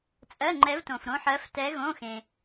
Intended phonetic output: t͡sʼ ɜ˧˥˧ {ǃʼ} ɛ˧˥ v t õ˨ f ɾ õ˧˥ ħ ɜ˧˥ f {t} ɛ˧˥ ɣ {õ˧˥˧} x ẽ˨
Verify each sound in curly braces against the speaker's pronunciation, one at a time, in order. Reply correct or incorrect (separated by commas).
incorrect, correct, correct